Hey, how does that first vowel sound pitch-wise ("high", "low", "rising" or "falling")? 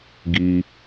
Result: high